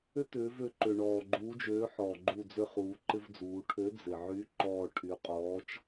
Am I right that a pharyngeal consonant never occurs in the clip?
no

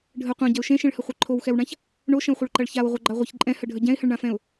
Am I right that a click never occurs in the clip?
no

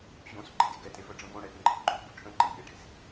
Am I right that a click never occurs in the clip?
no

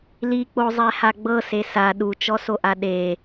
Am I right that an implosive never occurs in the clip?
no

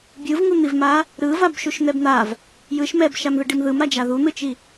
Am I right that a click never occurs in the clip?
yes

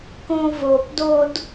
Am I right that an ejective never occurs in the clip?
yes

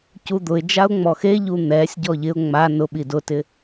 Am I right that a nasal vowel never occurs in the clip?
yes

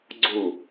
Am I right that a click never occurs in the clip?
no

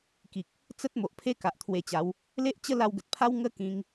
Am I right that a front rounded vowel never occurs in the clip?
yes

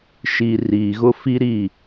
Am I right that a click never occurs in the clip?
yes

